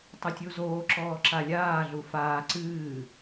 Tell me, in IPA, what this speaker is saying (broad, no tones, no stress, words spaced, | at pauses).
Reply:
tˤɘtʲuzoː ǁɔːǁalʲaː ɮufaː ǀɨː